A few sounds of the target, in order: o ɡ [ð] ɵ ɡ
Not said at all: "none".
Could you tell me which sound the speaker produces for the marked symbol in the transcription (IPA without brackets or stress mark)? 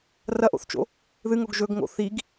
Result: ʒ